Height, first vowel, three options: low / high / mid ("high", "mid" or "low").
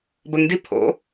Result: mid